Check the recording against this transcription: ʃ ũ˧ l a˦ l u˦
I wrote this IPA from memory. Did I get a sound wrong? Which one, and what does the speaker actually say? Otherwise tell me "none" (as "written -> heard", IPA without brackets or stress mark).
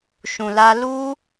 none